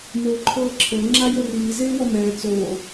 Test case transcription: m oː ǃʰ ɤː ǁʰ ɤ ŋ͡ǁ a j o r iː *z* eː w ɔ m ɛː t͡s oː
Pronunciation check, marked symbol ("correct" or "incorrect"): correct